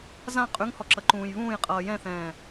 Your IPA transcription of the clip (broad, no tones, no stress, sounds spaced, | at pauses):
z ã qʼ ʉ ŋ h ɔ ǁ ʌ ǃ ũː j β ũː j qʼ ʌː j ɛ̃ θ ɛ̃ː